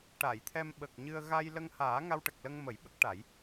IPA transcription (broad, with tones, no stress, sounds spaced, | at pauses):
ʈ a˨˩˨ j t̪ʰ ɛ˧ m ɓ ə˨˩ k̚ ɲ ɨ˧ ə̯ ɣ a˧ j l ə˧ ŋ h aː˨˩˦ ŋ a˧ w ʈ ə˨˩ k̚ l ə˧ ŋ m ə˨˩˦ j ɓ ə˦˥ k̚ ʈ a˨˩˦ j